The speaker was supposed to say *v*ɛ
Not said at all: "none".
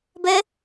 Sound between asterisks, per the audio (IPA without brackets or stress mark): b